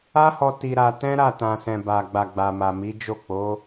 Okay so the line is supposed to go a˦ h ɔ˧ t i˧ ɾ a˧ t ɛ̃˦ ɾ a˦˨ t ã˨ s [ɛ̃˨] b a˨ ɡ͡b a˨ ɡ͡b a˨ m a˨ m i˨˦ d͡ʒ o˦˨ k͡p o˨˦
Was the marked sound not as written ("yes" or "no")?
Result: no